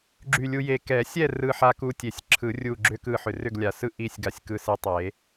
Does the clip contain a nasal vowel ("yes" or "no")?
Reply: no